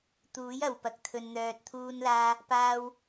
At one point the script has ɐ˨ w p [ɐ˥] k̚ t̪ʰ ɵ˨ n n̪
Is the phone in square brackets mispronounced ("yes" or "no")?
yes